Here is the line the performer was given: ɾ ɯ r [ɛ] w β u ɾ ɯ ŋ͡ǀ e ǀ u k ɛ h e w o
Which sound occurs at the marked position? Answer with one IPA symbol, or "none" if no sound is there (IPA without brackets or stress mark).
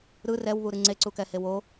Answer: ɛ